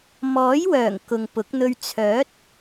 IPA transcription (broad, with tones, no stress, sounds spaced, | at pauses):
m ɔː˨˥ j w œː˨˩ ŋ k ʊ˨ ŋ p ʊ˨˥ k̚ n̪ ɵ˧ ɥ t͡sʰ œː˨˥ t̚